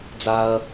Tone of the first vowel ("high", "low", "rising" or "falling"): high